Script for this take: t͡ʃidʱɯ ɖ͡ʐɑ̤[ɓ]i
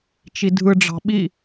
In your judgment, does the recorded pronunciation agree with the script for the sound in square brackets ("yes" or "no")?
yes